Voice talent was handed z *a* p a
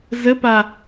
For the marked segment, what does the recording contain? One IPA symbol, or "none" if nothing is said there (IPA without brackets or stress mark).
ə